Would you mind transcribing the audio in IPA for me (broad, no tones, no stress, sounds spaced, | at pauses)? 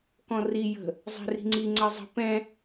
k ɔ̃ r i j ə̤ | zˤ ɛ̤ r i̤ ŋ͡ǀ i ŋ͡ǀ ɜ zˤ ə̤ p ɛ̃